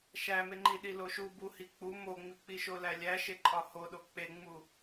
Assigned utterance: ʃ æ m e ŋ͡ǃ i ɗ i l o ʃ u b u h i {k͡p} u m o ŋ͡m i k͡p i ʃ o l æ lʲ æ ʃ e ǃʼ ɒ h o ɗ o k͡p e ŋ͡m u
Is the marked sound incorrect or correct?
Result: correct